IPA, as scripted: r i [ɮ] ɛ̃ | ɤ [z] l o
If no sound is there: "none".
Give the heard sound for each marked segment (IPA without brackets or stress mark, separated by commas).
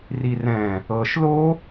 r, ʃ